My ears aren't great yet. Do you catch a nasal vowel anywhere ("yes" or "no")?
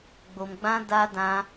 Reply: yes